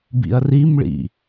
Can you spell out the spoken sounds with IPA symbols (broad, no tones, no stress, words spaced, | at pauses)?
bḭɐ̯rimɭḭ